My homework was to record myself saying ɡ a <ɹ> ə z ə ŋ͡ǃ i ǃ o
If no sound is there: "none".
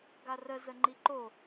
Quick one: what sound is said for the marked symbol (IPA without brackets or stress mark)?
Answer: r